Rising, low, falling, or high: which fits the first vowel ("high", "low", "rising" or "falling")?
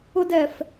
high